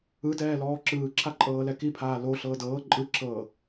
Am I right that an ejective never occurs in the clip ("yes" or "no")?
no